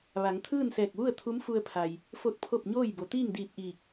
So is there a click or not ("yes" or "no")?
no